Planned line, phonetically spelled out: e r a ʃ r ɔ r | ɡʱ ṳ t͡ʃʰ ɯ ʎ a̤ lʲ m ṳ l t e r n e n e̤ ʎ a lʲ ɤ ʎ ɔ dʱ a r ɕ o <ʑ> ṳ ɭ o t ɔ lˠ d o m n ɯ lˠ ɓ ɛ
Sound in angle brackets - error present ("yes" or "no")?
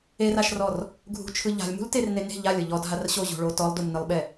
no